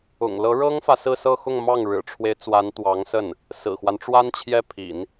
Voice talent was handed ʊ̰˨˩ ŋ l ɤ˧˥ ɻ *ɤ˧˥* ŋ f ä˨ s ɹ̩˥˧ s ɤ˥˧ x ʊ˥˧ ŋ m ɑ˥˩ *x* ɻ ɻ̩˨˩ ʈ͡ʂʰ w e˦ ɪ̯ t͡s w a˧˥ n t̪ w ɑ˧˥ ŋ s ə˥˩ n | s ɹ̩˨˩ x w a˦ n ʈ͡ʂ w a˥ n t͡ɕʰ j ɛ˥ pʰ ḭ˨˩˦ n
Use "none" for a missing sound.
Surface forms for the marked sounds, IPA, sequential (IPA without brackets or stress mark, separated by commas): ɤ˥, ŋ